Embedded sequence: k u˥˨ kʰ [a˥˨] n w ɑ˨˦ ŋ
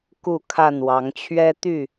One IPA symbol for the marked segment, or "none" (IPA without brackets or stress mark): a˥˨